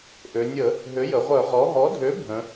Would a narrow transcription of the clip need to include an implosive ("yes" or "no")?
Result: no